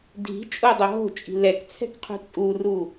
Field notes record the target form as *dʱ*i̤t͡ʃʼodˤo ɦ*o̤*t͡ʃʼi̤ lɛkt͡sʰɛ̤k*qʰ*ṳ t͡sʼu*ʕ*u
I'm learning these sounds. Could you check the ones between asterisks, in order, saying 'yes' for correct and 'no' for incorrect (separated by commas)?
yes, yes, yes, no